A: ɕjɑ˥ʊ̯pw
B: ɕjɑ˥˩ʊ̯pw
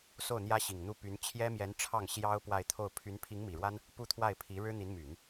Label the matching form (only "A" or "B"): A